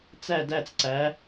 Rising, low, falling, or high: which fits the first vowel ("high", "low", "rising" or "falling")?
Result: falling